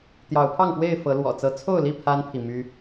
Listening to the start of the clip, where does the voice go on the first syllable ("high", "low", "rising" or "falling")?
rising